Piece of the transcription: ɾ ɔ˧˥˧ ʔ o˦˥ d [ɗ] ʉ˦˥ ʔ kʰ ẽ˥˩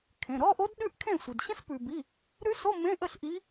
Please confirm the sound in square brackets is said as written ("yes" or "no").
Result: yes